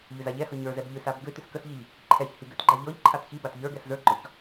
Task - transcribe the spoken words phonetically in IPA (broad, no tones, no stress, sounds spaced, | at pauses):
ʎ ʏ z a ʎ ɛ h ɤ ɲ ə˞ z ɛ b ʎ ʏ s a b ɡ ʏ t ʏ s k ə s ʎ i ʎ | ǃʰ ɛ ç h i ɡ ʏ t ɡ͡ǃ a ʎ ɔ ʎ ǃʰ a t ç i b a t ʎ ə˞ ɡ ɛ s z ə˞ ɡ͡ǃ ɔ ç